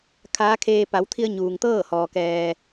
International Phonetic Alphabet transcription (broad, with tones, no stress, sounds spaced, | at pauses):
kʰ aː˧˥ kʰ eː˧ p a˩˧ w t̪ʰ i˧ ə̯ ɲ uː˩ ŋ t̪ ɤː˥˨ h ɔː˩ k ɛː˩